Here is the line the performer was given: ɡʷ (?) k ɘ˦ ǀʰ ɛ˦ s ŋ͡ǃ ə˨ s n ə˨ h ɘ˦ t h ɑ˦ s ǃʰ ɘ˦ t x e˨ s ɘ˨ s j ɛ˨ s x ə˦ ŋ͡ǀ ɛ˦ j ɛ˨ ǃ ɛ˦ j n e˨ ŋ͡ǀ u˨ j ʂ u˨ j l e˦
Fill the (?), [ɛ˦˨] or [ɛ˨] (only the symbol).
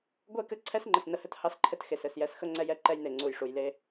ɛ˦˨